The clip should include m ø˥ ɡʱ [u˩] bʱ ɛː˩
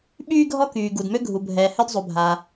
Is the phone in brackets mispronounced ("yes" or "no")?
no